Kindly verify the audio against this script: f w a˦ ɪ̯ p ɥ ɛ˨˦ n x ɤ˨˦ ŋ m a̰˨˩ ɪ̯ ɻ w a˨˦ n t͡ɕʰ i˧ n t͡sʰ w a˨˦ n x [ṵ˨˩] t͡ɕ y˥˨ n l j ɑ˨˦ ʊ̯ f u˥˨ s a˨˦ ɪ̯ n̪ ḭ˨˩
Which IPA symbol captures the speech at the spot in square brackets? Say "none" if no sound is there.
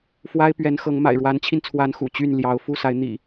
ṵ˨˩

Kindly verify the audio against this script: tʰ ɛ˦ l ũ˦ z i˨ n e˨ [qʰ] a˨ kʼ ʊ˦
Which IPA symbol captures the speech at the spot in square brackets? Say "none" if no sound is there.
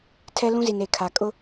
kʰ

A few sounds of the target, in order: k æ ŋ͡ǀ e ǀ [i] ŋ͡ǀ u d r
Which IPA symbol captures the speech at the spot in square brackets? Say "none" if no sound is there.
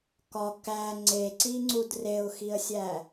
i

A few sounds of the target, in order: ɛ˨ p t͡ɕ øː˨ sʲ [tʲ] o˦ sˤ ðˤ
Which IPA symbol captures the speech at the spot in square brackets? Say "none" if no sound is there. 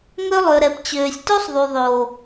t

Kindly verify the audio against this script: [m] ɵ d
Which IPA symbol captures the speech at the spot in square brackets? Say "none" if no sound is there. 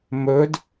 m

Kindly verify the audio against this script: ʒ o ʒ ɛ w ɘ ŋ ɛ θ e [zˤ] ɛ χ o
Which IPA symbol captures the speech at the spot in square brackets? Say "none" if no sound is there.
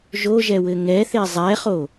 zˤ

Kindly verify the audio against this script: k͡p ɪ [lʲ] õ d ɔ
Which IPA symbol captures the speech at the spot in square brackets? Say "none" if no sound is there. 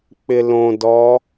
l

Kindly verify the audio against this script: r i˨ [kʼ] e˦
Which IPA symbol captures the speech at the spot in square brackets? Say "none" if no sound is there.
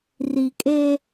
kʼ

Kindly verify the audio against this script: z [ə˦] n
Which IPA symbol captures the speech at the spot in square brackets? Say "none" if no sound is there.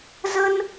ə˦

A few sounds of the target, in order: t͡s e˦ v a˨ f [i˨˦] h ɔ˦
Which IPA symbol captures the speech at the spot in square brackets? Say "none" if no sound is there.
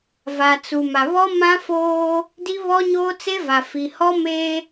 i˨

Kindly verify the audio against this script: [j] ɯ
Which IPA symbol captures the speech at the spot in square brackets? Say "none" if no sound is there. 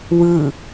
w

